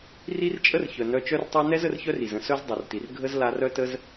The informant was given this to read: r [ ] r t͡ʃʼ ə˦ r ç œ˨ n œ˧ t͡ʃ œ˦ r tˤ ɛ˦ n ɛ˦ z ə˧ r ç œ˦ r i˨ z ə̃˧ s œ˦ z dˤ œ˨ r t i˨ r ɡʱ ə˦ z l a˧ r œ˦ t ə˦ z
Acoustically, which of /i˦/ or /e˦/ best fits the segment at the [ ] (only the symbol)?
i˦